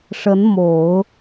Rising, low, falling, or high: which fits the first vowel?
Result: rising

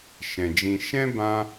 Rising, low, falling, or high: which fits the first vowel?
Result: low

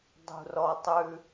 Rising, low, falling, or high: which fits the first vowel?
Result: low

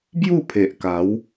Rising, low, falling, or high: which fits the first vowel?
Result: falling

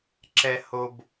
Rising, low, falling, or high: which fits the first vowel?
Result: high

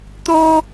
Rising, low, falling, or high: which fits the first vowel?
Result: high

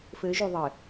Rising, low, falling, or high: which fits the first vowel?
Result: rising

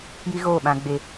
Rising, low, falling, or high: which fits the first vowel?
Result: high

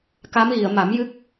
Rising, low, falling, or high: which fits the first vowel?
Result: rising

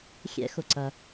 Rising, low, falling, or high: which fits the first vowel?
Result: rising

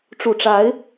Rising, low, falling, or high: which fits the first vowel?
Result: low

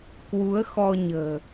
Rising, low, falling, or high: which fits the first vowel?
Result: rising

